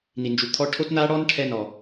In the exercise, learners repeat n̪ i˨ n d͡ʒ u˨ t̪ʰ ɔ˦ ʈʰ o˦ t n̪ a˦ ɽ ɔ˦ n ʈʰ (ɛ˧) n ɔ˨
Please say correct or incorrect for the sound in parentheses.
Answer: correct